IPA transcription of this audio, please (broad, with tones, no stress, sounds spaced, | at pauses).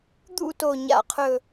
d̪ ṵ˦˨ t o˨˩ ɲ a̰˨˩ qʰ ɵ˨˩